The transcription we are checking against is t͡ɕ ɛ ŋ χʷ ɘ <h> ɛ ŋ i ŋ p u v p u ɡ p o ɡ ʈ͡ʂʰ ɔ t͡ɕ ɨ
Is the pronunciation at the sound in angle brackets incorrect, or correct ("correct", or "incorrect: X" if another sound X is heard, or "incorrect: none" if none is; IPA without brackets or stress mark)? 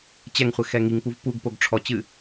incorrect: x